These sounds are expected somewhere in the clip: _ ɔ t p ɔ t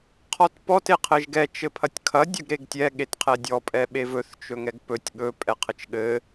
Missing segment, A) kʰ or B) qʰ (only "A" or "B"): B